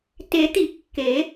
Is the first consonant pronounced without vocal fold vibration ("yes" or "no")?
yes